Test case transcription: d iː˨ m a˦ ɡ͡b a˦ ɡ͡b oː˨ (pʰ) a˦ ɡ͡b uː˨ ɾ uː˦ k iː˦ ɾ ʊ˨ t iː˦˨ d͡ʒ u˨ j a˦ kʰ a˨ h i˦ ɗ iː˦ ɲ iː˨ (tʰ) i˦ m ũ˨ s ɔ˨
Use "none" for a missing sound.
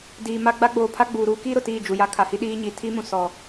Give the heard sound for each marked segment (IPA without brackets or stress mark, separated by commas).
pʰ, tʰ